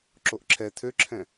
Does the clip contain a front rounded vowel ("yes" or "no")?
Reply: yes